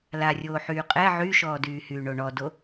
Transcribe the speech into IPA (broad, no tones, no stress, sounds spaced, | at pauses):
l a rʲ oː ħ yː qʼ ɛ ʕ y ʃ ɔː d yː h yː ɳ o ɳ ɔ d o